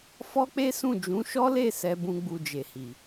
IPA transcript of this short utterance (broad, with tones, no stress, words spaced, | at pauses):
fɔ˦k͡pe˦sũ˦˨d͡ʒũ˨˦ ʃɔ˦le˦˨sɛ˨ bũ˧ɡ͡bu˧d͡ʒe˨hi˨